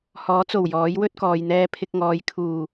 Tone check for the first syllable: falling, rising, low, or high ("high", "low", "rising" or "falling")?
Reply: rising